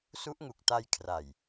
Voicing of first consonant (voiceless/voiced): voiceless